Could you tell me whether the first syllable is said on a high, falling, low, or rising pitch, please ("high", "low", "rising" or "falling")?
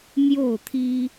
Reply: falling